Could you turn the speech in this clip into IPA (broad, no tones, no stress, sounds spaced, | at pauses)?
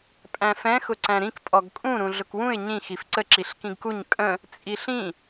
pʼ æ̃ f ɛ̃ x ʊ ǀ æ̃ ɾ ĩ k pʼ ɔ ɡ kʼ ũ ɾ ũ ɮ ʊ k w ũ ɪ̯ ɲ ĩ x i f ǀ ə ǁ i ɬ k ĩ ɡ k u ɲ kʼ ə̃ | t͡sʼ i ɬ ĩ